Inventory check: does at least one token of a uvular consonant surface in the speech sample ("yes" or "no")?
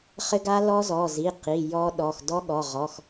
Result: yes